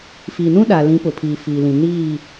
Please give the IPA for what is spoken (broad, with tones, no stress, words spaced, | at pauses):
fi˨nũ˦ɗa˨ lĩ˨˦ pʊ˨pʰiː˨fiː˨lĩ˨ niː˦˨